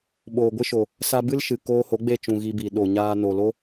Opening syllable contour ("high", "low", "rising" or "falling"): low